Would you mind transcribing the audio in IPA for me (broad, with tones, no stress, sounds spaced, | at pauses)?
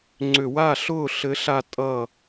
ŋ͡ǀ ʏ˧˩˧ w a˥˩ ɬ ʊː˥˩ ɬ ɘ˨˥ ɬ a˧ tʼ ʌ˥˩